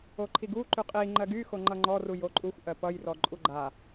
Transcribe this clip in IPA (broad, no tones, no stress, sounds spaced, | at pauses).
o ǃʰ i ɡ u ǃ y qʼ i ŋ͡ǃ ɜ ɡ y x o ŋ͡ǃ ʌ ŋ͡ǃ ɔ r u j o ǃʼ u xʷ ʔ ɜ p ʌ j r ɔ ǃʼ u ɡ͡ǃ a